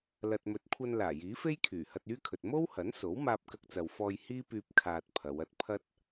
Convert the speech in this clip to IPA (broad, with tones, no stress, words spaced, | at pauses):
lɐ˨t̚mɵ˨˥t̚kʷʰɐ˧n laː˨˩jiː˨˥fe˥j kʰyː˨˩hɐ˧t̚yː˥kʰɵ˨t̚ mo˥whɐ˨˥nso˨˥w maː˧p̚kɐ˧k̚t͡sɐ˨wfɔː˧j hiː˥pyː˧p̚ kʰaː˧t̚pʰɐ˨˧w ɐ˧t̚pʰɐ˥t̚